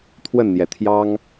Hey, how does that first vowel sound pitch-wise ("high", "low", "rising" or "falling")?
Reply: falling